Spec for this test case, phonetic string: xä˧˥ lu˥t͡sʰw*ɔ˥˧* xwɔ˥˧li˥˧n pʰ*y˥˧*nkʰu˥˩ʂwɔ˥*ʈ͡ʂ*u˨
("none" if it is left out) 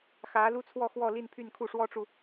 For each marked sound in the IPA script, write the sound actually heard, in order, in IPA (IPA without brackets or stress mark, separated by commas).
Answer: ɔ˥˧, y˥˧, ʈ͡ʂ